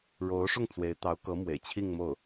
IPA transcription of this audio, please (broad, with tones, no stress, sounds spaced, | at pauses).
ɻ o˧˥ ʊ̯ ʂ ʊ˥˩ ŋ t͡s w e˧˥ ɪ̯ t̪ ɑ˧˥ ʊ̯ k ɤ˧˥ m w ḛ˨˩ ɪ̯ t͡ɕʰ i˥˧ ŋ m o˥˩ ʊ̯